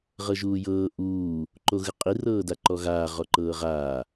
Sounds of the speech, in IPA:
ʁ ɤ ʒ uː j ɤː ʔ uː | ǃ o ɣ ɯ qʼ i r ɤː d a ǃ ɔ ɣ aː ʁ ɔ ǃ ɤː ʁ aː

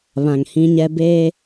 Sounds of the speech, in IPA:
β ã˨ ŋ h ĩ˦ ɲ ɛ˦ b eː˦

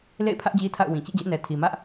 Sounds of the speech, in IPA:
l ḛ˦˨ ɪ̯ pʰ ä˦ ʔ d͡ʑ i˦ tʰ a̰˦˨ ʊ̯ w ĩ˨ t͡ɕ ḭ˦˨ d͡ʑ ɛ̰˦˨ n ɛ˨ tʰ i˨ m ä˦ ʔ

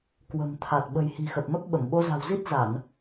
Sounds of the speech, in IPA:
k w ə̤˨˩ m t̪ʰ a˨˩ t̚ ɓ ə̤˨˩ j h i̤˨˩ x ə˨˩ p̚ m ə˦˥ p̚ ɓ ə˧˩ m ɓ o˧ z a̤˨˩ w z i˦˥ t̚ z a˧˩˨ n

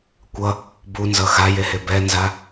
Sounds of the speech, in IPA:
kʷ ʌ | b u n z ʌ x a j e h e b ɛ n z a

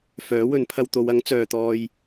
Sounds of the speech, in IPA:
f œː˨˥ w ɵ˨˧ n pʰ ɐ˧ w t̪ o˨˧ w ɐ˨˥ ŋ t͡s œː˨ t̪ ɔː˧ j

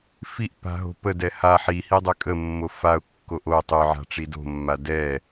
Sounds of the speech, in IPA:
f i ʔ p a̤ ɦ o̤ p ə d ɛ h a ħ i h i dˤ ʏ kʼ ə mː o f a ʊ̯ kː o ʔ o tˤ y ʕ a̤ ʈ͡ʂ i d o̤ mː a d ɛ

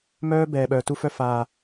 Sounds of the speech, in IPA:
m œː˦ b ɛː˨ ɓ œː˨ t u˧ f œ˧ f aː˨

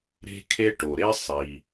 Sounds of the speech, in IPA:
ɾ e̤˦ kʰ e˦ ʈ o˩ ɾ e˦ sˤ i˩

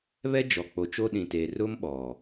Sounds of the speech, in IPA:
β ɛ˦ d͡ʒ ɔ˨ k͡p o˨ t͡ʃ o˦ ɗ ĩ˨ t eː˨ r ʊ˦ m ɓ ɔ˨

